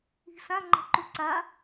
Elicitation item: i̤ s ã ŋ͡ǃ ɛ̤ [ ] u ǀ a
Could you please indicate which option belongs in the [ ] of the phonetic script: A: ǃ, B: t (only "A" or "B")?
A